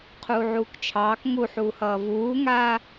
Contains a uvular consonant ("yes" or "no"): yes